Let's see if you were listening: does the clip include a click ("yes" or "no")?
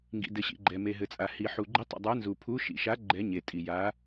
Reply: yes